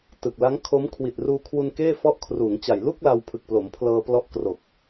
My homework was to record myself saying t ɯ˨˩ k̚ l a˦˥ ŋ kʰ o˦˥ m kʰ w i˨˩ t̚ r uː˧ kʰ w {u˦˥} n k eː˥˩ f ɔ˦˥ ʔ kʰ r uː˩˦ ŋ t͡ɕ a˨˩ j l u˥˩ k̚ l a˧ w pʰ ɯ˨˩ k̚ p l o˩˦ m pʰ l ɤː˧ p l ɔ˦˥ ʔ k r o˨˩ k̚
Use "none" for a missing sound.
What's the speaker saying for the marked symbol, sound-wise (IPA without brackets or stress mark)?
u˧